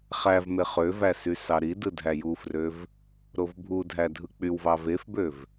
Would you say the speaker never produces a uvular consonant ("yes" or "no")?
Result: no